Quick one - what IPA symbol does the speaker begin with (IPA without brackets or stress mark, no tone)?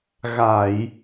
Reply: ɣ